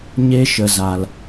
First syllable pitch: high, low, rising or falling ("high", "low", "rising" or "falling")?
high